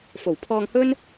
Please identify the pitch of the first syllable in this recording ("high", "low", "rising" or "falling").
low